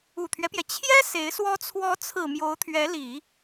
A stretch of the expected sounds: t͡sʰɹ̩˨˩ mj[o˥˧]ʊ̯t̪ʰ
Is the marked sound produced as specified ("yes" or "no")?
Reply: no